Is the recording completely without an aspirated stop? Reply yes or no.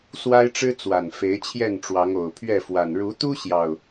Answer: no